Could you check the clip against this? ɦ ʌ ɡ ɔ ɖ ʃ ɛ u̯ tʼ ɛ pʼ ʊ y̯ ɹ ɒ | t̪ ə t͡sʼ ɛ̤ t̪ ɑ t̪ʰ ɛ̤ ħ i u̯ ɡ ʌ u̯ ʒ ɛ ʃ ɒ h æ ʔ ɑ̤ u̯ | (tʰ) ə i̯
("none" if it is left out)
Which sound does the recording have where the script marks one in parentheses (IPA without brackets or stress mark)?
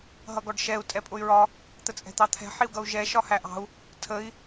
tʰ